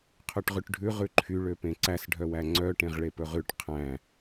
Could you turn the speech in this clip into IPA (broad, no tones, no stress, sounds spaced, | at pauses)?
qʰ ø ʈ ʁ ʉ ʈ ɖʱ ʉ ʁ ʉ ǃʰ y ɭ ø p ẽ ǀ æ s ɖʱ œ w æ ŋ͡ǀ œ ʈ ẽ ʁ ɭ e p ɵ ʁ ʉ ʈ qʰ æ̃